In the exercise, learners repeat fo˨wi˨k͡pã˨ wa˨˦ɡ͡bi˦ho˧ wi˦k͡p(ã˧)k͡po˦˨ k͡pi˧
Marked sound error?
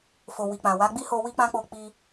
yes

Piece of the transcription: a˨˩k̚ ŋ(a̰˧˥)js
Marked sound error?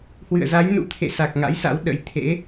no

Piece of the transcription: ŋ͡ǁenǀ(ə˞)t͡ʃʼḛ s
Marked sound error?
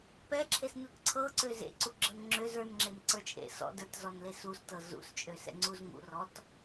no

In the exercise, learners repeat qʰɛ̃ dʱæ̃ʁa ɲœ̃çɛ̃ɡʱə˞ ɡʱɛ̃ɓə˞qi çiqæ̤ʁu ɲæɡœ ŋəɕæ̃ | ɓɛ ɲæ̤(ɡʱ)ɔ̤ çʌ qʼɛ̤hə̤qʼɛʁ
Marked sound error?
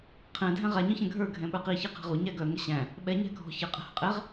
no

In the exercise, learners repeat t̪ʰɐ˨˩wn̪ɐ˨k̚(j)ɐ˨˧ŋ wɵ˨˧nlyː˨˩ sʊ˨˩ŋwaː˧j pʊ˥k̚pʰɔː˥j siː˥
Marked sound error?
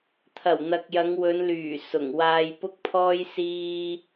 no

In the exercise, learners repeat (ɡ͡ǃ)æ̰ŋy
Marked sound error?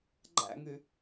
no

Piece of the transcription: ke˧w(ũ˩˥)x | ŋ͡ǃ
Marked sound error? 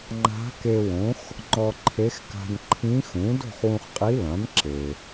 yes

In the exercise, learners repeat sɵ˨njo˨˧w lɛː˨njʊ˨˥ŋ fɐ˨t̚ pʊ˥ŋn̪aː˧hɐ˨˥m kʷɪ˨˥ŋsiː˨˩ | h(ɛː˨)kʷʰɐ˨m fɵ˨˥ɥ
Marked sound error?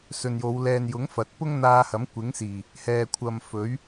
no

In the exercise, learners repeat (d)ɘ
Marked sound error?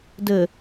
no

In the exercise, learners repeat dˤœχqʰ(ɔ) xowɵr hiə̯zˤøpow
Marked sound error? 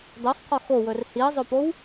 no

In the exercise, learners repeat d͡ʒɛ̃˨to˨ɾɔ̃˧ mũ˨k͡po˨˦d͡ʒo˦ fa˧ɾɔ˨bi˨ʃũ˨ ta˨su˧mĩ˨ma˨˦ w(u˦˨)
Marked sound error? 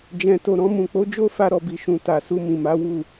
no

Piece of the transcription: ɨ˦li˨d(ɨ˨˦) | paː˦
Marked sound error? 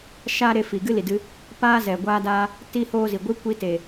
yes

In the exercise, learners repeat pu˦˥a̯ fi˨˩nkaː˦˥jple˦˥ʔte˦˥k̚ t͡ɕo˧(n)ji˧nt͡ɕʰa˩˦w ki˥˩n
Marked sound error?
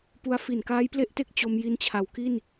yes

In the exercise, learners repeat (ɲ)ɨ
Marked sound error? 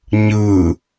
no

